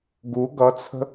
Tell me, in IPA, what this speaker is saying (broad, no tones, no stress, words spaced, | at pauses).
ɡu ɡʌt͡sʰə̤